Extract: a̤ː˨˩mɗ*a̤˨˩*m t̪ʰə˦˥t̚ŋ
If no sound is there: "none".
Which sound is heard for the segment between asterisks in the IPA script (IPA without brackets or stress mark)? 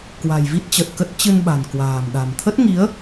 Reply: a̤˨˩